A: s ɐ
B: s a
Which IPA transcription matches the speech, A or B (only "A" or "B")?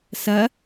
A